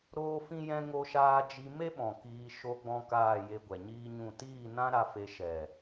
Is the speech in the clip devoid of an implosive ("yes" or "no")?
no